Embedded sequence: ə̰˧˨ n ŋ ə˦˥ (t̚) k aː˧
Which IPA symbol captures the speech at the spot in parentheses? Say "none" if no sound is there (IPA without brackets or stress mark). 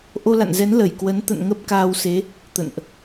p̚